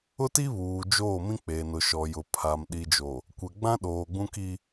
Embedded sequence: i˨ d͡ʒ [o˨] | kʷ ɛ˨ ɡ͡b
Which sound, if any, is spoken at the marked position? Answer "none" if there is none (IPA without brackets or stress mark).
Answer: o˨